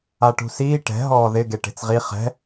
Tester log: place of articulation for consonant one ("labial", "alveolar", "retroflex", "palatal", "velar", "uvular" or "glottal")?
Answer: retroflex